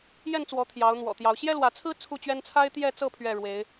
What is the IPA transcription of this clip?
j ɛ˥˨ n t͡s w ɔ˨˦ t̪ʰ j ɑ˨˦ ʊ̯ n̪ w ɔ̰˨˩ t̪ j ɑ˨˦ ʊ̯ ɕ j ɛ˦ l w ä˨˦ t͡sʰ ɹ̩˦ t͡sʰ u˥˨ t͡ɕ ɥ ɛ˦ n t͡sʰ a˦ ɪ̯ t̪ j ɛ˥˨ t͡s ɤ˥˨ pʰ ɥ ɛ˥˨ ɻ w e˨˦ ɪ̯

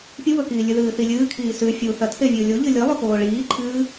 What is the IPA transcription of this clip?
pʲ u β ɵ k iː lʲ ʉ ð ɨː θ i lʲ ɨː kʰ iː s ʉ fʲ u θ ɐ tʰ e vʲ ɨː lʲ o ʎ ɨ lʲ ɨ lˠ ʉ k oː ɭ iː ǃʰ ɨː

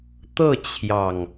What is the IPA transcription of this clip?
t̪ ɤ˥˨ t͡ɕʰ j ɑ˨˩ ŋ

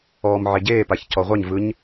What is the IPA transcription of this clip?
ɔː m ʕ e ɟ eː p a ç c ɔ ʁʷ ɛ ɲ v ɯ ɲ

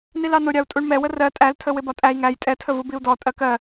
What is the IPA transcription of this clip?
n i l ɑ n ʊ ɾʲ ɑ u̯ tʼ u ɳ m ɛ w ə r ɜ tʼ æ l tʰ ə w ɪ b ɒ tʼ æ i̯ ŋ æ j tʼ ɛ tʰ ə v u b i u̯ d ɔ tʼ ɜ k ɜ

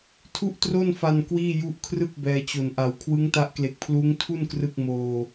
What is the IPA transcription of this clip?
tʰ u˥˩ ʔ t r o˥˩ n f a˧ n k w iː˥˩ j u˦˥ ʔ kʰ r ɯ˥˩ k̚ b ɛː˧ t͡ɕ o˨˩ n ʔ a˨˩ w kʰ w ɯ˦˥ ŋ t a˦˥ ʔ k l e˨˩ k̚ pʰ l uː˦˥ ŋ tʰ u˥˩ n k r ɯ˥˩ k̚ m oː˧

